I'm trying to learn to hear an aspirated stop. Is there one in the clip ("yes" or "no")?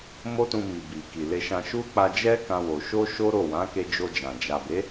no